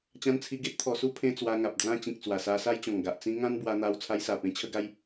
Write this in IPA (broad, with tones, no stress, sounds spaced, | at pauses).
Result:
t͡ɕ ã˧ n t͡sʰ i˧ ɡ e˦ t̚ t̪ʰ ɔ˧ s u˦ pʰ ẽ˦ t͡s w a˧ ŋ a˨ p̚ d͡z ã˧ t͡ɕ ĩ˨ k̚ t͡s w a˨˩ s a˧ s a˦ j t͡ɕ ɔ̃˨˩ ŋ ɡ a˨ ʔ t͡s ĩ˧ ŋ ã˦ n b w a˧ n̪ a˧ w t͡sʰ a˧ j s a˨˩ p ẽ˧ t͡ɕʰ ə˦ ɡ a˦ j